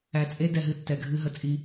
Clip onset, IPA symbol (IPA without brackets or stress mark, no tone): æ